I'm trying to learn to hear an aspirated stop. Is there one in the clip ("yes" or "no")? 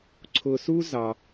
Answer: yes